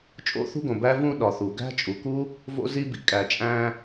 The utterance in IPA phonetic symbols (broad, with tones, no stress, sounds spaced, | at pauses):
t͡ʃʼ o̰˥ θ ṳ˥ ɡ õ˩ b æ˥ v ũ˥ ɗ ɒ˩ θ u˩ ɡ æ̤˥ t͡ʃʼ u˩ k u˥ | v o̰˥ z i˥ b ḭ˩ kʼ æ˩ t͡ʃʼ æ̃˥